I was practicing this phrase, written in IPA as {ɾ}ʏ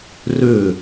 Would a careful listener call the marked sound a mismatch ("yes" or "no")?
yes